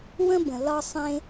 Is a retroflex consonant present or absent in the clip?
absent